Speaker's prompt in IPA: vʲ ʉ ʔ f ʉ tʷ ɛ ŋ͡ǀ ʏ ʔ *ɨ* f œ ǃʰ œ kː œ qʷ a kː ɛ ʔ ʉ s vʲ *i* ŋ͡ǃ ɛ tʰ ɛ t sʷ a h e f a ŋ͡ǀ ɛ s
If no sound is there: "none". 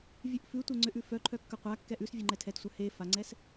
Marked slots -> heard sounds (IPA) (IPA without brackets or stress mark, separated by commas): ʉ, e